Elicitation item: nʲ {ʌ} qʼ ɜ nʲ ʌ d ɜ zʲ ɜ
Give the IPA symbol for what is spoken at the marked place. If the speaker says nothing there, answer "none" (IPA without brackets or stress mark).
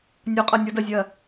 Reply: ɒ